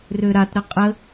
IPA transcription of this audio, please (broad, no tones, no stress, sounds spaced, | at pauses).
r ø ɾ a t ɾ ə qʼ ə